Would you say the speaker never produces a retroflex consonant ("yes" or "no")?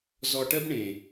no